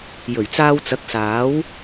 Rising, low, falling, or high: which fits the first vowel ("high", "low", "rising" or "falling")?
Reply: low